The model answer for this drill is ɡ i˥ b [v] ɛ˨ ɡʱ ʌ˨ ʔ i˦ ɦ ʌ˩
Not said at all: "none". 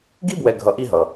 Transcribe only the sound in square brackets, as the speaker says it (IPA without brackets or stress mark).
w